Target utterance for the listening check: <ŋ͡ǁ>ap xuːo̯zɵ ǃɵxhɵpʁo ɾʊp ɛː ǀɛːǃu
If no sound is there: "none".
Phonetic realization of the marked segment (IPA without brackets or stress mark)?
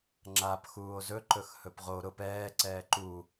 ŋ͡ǁ